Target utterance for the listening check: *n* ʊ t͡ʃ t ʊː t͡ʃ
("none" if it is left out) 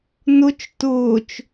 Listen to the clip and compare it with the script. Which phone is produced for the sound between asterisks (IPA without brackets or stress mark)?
n